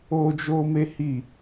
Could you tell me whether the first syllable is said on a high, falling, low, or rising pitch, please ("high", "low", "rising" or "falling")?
high